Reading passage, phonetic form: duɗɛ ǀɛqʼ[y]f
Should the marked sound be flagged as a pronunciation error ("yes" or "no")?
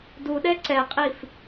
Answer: yes